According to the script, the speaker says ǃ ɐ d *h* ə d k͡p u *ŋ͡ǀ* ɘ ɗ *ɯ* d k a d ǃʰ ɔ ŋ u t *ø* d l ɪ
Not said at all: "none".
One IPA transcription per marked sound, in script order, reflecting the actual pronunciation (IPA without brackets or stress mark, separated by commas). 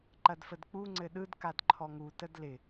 f, ŋ͡ǀ, ɯ, ə